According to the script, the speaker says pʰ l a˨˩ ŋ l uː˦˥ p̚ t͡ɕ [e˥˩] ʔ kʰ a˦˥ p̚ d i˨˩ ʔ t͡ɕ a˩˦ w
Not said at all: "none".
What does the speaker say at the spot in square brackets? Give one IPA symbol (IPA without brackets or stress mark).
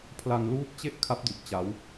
e˥˩